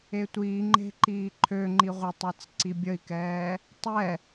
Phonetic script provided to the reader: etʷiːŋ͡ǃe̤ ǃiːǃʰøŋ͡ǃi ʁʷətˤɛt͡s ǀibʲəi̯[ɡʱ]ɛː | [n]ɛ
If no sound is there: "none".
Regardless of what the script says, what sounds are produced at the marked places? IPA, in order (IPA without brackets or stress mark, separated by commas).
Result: k, tˤ